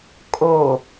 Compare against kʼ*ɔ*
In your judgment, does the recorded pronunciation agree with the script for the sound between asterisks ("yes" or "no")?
no